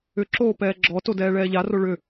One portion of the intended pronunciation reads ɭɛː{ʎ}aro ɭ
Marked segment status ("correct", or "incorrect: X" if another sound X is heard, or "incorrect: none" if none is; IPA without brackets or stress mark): correct